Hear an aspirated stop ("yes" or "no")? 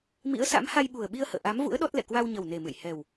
no